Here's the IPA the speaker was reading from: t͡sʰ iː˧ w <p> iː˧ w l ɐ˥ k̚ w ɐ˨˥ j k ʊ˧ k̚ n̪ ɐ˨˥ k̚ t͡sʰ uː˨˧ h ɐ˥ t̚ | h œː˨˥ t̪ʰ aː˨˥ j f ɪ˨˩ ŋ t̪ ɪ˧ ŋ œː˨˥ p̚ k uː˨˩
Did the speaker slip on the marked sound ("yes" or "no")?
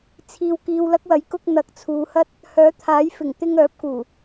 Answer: yes